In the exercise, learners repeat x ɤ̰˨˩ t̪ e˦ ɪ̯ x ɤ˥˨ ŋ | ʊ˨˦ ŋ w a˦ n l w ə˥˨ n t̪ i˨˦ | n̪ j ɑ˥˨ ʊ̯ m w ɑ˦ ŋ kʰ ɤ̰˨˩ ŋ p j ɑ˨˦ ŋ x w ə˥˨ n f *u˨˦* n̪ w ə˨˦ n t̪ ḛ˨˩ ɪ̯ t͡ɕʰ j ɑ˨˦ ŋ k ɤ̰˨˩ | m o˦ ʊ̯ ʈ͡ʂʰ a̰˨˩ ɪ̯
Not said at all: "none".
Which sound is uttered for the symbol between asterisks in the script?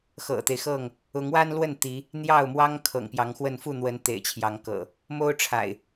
u˥˨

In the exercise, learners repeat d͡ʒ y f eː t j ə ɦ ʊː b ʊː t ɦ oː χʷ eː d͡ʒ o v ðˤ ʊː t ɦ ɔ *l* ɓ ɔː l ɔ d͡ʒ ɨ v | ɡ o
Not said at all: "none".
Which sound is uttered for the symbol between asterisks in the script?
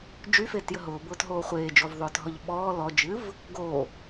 ʎ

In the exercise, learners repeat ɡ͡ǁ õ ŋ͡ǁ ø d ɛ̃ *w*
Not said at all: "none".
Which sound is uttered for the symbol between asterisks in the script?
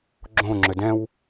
w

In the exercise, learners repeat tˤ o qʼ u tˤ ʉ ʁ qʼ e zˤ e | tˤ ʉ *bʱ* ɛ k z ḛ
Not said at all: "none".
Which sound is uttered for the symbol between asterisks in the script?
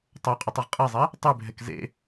bʱ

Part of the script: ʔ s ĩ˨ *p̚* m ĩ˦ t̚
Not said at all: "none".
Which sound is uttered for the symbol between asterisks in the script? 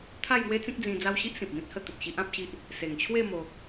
p̚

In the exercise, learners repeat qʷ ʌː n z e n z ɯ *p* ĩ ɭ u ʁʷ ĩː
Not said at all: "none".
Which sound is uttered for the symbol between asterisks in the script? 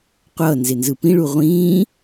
p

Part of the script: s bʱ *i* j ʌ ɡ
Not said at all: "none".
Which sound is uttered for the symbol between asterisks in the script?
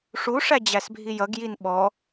i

